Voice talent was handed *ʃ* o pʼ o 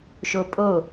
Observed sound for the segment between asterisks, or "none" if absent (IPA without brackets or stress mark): ʃ